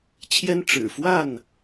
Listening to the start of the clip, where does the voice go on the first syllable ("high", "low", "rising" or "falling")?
high